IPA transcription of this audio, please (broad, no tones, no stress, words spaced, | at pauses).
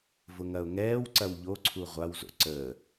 vʊŋɐʊ̯ŋɛːw ǀɐwʎoǀʰu ʁʷawzo̰ ǀəː